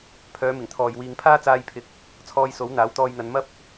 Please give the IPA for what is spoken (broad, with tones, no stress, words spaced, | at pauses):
pʰœː˨˧mɪ˨˩ŋt̪ʰɔː˨j wiː˨ŋpʰaː˥t͡saː˧jpʰɪ˨˥k̚ | t͡sʰɔː˧jso˨˥w n̪aː˨˥wt̪ɔː˧jn̪ɐ˨˧n mɐ˥p̚